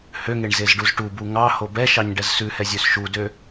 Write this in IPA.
h ø ŋ e ɳ z e z ɖ u z ʈ u b u ŋ ɑ h o b ɛ ʃ ɑ ɲ ɖ ɛ z s ʉ h ɛ zʲ ø s ʃ u d ø

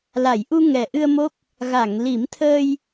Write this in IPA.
l a˨˩˨ j ʔ u˧ ŋ ɛ˨˩ ʔ ɨ˧ ə̯ m o˦˥ k̚ | ɣ a˨˩˨ ŋ l i˨˩˦ m t̪ʰ əː˧ j

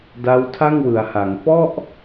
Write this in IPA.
d a˦˥ w tʰ a˥˩ ŋ w ɯ˩˦ a̯ h a˩˦ ŋ f ɔ˥˩ ʔ

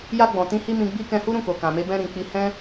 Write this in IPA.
j a˧ ɡ͡b ɔ̃˨ t ĩ˧ h i˦ m ĩ˧ ɡ͡b i˦ k ɛ̃˧ h u˦ ɾ ũ˦˨ k o˨ k ã˨ m e˧ b ɛ̃˧ ɾ ĩ˨ k͡p i˧ h ɛ̃˦

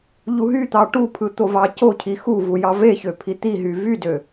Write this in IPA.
ʎ u ɦ y t̪ ɑ ʈ u pʰ ɯ t̪ o v ɑ c o cʰ i x u v u j ɑ v e ç ø pʰ i t̪ i ɦ y v y d ø

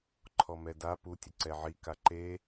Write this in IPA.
ǃʰ ɔ m ɛ d a p u tʲ ʊ ǀ ɛ ʕ i k a ǃ e

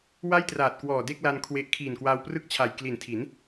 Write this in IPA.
w a˥˩ j t r aː˨˩ t̚ k w ɔː˨˩ d e˥˩ k̚ l a˧ n kʰ w e˦˥ ʔ kʰ iː˨˩ n k w aː˧ w p r ɯ˥˩ k̚ t͡ɕʰ a˨˩ j k l i˨˩ n tʰ i˩˦ n

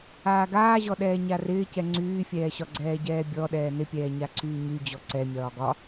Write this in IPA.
aː ɡ aː ʑ ɔ ɗ ɛː ɲ a r ɪː c ɛ ŋ͡ǀ yː fʲ ɛː ɕ ɒ ɡ͡ǀ ɛː ɟ ɛː bʲ ɔ ɗ ɛː n ɪ pʲ ɛː ɲ a ǀʰ yː ɲ y d͡ʑ ɔ ǀ ɛ mʲ ɒː ɡ ɒ

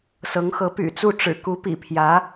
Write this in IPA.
s ɤ˧˥ ŋ x ɤ˧˥ p y̰˨˩ t͡s u˥˩ ʈ͡ʂ ɻ̩˨˩ k u˧˥ p ḭ˨˩ pʰ j ä˧˥

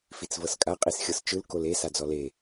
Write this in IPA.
f i t͡s v ɤ s kʼ a qʼ i s xʲ ɤ s t͡ʃ ɯ l k o l e s a d͡z ɔ l e

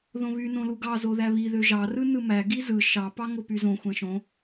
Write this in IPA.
ð õ β y n õ l u ɡ ɑ z o ð æ β i ð ø ʒ ɑ r ɯ n ɯ m æ ɡ i z ɯ ʃ ɑ p ɑ ŋ o p y z õ xʷ æ̃ ʃ õ

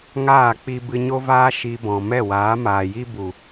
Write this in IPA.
ŋ aː˦˨ k͡p i˧ b ɨ˧ ɲ o˦ v aː˦ ʃ i˧ b ɔ̃˨ m ɛ˦˨ w aː˨˦ m aː˨ j i˦ b u˨

